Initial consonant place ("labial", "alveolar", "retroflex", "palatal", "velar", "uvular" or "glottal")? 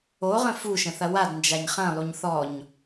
uvular